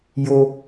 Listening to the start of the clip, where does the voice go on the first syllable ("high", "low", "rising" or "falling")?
low